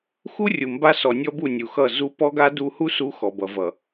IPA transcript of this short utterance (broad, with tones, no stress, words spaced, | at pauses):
xu˦rʲu˨mba˦ sɔ˨nʲɔ˦bu˦˨ nʲu˨xʌ˦˨ zu˦ pɔ˦ɡa˦du˦ hu˦su˨˦ xɔ˨bʌ˨vʌ˨